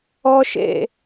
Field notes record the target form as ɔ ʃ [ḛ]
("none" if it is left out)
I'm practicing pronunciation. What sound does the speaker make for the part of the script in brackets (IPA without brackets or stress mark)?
ḛ